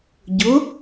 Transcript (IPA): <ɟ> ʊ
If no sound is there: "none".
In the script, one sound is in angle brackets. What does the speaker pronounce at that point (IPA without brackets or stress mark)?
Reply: ɟ